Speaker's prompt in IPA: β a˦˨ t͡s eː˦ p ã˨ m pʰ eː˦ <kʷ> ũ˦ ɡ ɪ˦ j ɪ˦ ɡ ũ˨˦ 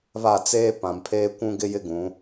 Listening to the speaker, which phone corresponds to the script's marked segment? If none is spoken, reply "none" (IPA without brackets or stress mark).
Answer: kʷ